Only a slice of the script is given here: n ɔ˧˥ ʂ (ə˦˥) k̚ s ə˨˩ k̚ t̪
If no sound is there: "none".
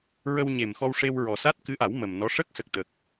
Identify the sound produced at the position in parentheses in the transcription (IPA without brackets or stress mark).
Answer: ə˦˥